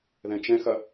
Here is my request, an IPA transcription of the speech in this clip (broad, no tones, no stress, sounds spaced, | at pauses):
ð ɛ̃ t͡ʃ ɛ̃ x ɐ